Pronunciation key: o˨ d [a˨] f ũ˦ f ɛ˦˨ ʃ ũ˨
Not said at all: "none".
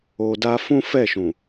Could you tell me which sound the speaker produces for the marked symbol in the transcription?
a˧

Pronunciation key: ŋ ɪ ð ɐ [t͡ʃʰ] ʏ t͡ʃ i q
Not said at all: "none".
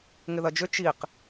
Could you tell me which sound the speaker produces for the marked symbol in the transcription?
d͡ʒ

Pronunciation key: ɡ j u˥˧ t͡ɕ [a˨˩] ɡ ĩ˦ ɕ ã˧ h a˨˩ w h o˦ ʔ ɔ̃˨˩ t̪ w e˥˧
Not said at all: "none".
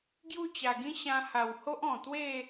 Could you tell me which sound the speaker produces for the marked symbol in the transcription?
a˨˩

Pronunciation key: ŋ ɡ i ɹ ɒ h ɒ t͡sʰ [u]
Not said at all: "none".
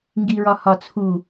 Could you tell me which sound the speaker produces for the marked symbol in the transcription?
u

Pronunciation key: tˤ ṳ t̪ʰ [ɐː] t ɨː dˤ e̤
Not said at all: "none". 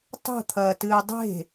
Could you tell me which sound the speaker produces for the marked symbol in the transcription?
ɐː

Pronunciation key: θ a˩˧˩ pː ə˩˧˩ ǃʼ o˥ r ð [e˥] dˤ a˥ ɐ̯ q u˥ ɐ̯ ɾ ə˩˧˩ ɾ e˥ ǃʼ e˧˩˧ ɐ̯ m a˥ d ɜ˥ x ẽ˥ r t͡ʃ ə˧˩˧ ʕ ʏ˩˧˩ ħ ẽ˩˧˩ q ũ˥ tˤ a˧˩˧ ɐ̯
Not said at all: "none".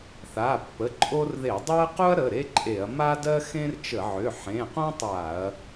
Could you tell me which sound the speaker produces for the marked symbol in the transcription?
e˧˩˧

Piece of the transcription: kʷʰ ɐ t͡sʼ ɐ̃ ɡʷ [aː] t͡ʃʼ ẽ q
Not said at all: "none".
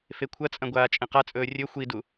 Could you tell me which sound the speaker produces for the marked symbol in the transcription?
aː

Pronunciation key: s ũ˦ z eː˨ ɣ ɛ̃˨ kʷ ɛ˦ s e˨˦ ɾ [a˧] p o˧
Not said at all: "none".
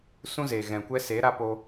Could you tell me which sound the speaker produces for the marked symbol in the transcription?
a˧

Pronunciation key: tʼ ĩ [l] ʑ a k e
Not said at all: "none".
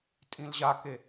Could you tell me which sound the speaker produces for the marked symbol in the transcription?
l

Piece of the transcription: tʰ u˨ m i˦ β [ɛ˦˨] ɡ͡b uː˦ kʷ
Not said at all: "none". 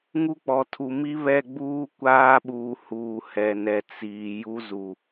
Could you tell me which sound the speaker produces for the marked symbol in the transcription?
ɛ˦˨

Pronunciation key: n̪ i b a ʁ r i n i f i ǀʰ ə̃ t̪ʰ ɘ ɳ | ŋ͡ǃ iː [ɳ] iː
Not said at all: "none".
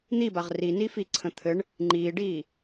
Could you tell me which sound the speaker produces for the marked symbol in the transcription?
ɖ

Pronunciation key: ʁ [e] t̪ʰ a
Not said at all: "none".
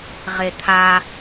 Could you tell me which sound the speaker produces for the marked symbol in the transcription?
e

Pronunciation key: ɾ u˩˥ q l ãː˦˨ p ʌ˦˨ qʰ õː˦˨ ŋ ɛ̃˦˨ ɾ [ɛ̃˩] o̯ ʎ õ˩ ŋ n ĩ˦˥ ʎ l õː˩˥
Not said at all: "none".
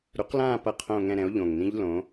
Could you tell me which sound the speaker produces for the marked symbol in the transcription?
ɛ̃˩˥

